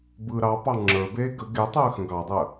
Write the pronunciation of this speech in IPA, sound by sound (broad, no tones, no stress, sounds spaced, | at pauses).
b ɯː ɾ ɑ p ɑ ŋ͡ǁ ə˞ b eː ɡ ə ɡ e tˤ əː x ə̃ ɡ ɑ dˤ əː